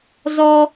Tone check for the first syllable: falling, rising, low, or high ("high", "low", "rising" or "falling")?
high